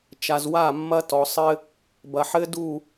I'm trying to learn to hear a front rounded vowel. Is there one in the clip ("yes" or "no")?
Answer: no